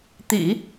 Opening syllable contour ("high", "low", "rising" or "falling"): low